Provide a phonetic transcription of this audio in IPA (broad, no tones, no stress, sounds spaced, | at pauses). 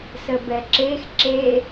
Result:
s ə b ɛ ǁ e x ǁ e